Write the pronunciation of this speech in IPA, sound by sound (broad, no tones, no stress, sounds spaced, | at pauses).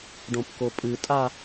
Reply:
ɖ õ p k o pʼ ɨ tʼ a